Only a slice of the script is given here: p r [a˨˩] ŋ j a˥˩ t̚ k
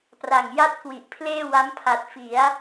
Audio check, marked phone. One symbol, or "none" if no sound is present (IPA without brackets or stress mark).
a˨˩